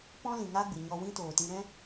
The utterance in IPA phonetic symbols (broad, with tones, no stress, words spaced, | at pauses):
pɔ̃˦lĩ˨ŋa˦ ɡ͡bɨ˨ɲɔ˧wĩ˦toː˨ tĩ˧ɾɛ̃˦